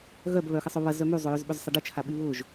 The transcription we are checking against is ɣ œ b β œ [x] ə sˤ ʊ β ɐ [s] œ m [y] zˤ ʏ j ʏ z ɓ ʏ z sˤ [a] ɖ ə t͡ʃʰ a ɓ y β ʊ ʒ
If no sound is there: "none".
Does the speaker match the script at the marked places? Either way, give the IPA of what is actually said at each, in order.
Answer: x, z, y, ɐ

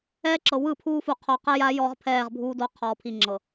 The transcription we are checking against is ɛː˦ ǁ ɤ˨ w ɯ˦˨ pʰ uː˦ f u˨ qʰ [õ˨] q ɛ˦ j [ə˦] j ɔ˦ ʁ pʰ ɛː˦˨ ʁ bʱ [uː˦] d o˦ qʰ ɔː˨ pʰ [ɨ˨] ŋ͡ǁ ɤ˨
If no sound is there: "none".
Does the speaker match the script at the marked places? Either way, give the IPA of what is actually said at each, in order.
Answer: o˨, a˦, uː˦, i˨

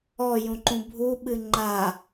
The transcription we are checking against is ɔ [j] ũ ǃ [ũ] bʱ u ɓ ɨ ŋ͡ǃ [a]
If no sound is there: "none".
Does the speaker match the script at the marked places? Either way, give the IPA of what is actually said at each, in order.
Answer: j, ũ, a

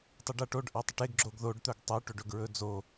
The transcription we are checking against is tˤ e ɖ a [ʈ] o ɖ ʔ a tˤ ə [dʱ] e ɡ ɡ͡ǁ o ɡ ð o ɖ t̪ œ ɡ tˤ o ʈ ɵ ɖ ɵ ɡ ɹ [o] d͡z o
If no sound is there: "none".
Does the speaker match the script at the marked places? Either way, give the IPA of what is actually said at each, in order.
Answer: ʈ, ʈ, ɵ

